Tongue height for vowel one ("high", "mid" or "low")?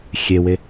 mid